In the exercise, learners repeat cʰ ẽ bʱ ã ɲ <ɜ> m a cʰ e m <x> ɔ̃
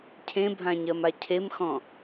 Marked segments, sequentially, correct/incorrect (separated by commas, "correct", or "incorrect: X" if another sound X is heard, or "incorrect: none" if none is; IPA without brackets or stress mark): correct, correct